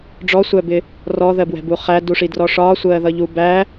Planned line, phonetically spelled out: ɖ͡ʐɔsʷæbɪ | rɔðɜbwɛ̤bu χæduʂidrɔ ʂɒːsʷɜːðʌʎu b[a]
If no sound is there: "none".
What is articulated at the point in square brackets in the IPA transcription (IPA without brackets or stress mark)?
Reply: æ